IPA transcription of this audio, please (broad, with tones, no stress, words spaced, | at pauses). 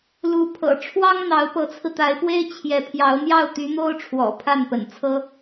lu˧˥ pʰɤ̰˨˩ʈ͡ʂʰwɑ˥ŋn̪ɑ˧˥ʊ̯ pɤ˧˥t͡sʰɹ̩˧t̪a˧˥ɪ̯pwe˥ɪ̯ t͡ɕʰjɛ˧˥pʰjɑ˧˥ʊ̯ n̪jɑ˥˩ʊ̯t̪y˧˥n̪o˥ʊ̯ ʈ͡ʂʰwɔ̰˨˩ pʰa˥˩npə̰˨˩nt͡sʰɤ˥